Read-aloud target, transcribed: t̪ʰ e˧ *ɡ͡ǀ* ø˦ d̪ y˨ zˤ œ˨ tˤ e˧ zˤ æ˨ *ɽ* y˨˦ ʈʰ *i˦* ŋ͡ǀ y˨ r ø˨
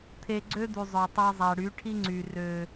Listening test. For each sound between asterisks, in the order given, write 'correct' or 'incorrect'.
correct, correct, correct

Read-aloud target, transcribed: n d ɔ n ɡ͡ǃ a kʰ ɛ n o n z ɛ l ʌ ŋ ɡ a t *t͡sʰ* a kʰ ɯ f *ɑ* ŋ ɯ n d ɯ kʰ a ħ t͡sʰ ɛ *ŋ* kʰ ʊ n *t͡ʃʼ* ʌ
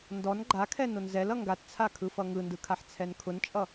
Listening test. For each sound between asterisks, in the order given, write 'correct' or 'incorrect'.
correct, incorrect, incorrect, correct

